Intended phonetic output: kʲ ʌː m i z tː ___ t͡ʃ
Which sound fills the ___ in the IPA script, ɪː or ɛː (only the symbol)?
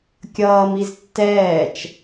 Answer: ɛː